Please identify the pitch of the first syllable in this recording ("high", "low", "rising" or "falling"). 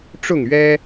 falling